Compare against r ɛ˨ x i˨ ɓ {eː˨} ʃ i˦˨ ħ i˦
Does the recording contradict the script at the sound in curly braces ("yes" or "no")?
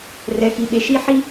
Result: yes